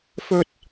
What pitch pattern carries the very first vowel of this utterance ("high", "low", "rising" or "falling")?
high